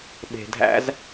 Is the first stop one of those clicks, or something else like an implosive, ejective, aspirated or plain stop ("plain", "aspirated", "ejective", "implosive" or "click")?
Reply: implosive